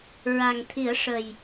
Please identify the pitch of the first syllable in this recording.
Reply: low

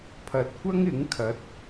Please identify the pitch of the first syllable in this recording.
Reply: low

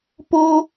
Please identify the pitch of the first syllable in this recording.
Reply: high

